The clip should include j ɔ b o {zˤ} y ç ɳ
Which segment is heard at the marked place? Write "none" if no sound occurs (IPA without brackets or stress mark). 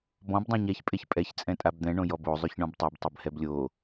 zˤ